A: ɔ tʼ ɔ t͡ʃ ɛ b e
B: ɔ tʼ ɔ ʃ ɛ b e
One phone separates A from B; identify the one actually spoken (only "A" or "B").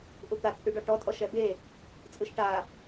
B